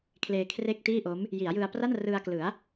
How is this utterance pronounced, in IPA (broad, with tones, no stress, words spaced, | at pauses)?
kʰleː˧kʰre˥˩k̚tiː˥˩ʔo˦˥m | ji˩˦a̯jɯ˧a̯pra˥˩n rɯ˧a̯klɯ˩˦a̯